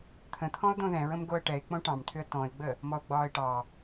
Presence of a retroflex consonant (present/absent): present